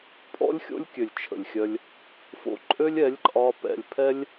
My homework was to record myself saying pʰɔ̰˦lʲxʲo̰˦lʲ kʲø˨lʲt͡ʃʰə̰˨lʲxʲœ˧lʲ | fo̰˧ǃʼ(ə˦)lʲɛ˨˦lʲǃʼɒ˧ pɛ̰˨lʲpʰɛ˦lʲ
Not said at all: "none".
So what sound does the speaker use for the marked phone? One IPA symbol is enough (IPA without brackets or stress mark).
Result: ø˦